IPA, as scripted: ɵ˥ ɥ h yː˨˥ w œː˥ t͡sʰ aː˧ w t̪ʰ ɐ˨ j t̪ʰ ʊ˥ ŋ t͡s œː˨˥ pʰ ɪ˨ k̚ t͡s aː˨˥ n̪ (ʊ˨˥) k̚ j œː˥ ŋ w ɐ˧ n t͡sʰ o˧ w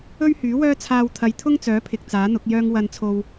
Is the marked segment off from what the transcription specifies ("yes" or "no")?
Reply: no